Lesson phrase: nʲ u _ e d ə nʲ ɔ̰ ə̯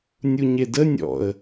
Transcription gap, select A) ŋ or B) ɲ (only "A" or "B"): B